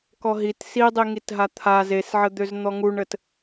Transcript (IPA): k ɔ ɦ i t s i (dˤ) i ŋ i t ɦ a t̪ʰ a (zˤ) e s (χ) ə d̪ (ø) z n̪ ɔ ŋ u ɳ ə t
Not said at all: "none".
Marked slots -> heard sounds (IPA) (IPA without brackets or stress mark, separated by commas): dˤ, z, ʕ, ø